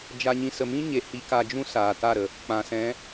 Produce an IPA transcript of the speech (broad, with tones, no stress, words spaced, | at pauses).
d͡ʒa˧ɲĩ˧ sə˨mĩ˦ɲe˨ hi˧ka˧d͡ʒũ˦ saː˨ta˦˨ɾə˨ | k͡pã˨sɛ̃˨˦